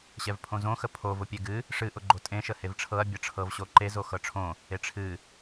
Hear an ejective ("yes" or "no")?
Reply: yes